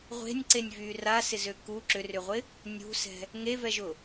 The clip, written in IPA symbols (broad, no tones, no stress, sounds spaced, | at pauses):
ʁʷ e̤ nʲ ǀ e nʲ v yː r a s ɪ z ø k u ǁ ʏ r ʏ ʁʷ ɪ | nʲ ṳ s ɛ̤ | ŋ e v ɛ ʒ ʊ